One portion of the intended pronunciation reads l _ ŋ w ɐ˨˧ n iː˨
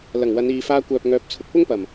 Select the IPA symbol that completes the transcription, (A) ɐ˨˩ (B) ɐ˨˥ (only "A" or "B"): A